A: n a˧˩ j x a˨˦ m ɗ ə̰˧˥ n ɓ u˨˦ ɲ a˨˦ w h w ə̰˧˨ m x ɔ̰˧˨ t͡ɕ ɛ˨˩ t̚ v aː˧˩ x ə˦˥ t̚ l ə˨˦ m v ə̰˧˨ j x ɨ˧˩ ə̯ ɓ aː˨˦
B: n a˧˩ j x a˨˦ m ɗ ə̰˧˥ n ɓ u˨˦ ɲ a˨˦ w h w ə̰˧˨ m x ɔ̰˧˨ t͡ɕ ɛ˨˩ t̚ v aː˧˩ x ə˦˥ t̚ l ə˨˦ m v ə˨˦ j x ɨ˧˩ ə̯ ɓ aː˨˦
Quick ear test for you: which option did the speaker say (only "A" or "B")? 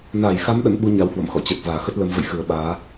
A